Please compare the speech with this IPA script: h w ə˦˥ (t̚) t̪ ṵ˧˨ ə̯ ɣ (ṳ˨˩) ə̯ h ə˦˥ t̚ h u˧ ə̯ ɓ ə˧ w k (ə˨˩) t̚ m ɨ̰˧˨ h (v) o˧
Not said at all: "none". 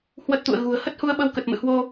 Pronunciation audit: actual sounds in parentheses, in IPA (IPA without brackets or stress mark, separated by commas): t̚, ṳ˨˩, ə˨˩, w